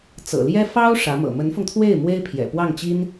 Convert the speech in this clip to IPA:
t͡sɤ̰˨˩ljɛ˥ fɑ˥ʊ̯ ʂä˧˥mɤ̰˨˩ mə˧˥nfʊ˧ŋt̪ʰwe˥˩ɪ̯ mwe˥ɪ̯pʰjɛ̰˨˩pwɑ˥˩ŋt͡ɕi˥n

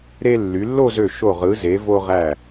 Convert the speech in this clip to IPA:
ɾe˧lːy˩˧lːo˥˧zø˧˩ ʃo˧˩ʁɯ˩˧ze˩˧ vo˧ʁæ˧˩

